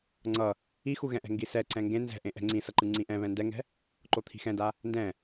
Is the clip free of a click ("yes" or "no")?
no